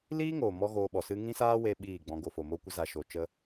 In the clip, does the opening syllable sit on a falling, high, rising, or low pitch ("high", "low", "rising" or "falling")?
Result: high